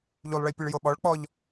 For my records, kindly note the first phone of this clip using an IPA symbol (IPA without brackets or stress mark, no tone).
ʎ